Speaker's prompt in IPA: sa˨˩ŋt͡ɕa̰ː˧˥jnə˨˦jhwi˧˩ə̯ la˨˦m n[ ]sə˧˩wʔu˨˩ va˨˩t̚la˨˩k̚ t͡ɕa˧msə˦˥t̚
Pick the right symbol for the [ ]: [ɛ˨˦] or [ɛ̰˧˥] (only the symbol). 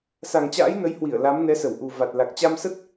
ɛ˨˦